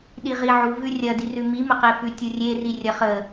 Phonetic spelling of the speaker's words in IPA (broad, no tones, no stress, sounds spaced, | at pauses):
ɗ i ʁ i ʕ u v ʉ rʲ ɐ d i r ʉ m i m ə q e f ʉ tʲ u rʲ e r i rʲ ɐ χ ə